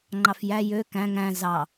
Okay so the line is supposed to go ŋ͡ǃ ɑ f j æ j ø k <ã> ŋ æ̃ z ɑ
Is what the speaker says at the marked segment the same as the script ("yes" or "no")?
no